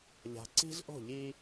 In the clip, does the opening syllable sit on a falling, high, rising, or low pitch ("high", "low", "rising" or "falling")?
low